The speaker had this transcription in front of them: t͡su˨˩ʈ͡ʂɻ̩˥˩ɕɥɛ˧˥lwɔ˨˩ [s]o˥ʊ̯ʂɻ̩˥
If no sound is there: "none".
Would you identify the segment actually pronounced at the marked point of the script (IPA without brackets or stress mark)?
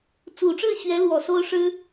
s